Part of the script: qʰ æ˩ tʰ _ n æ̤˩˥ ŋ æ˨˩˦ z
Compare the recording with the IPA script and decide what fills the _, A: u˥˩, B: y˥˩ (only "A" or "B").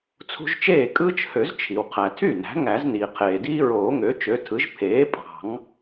B